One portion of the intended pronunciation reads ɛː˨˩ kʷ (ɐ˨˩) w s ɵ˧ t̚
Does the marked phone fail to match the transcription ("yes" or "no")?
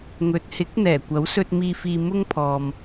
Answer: yes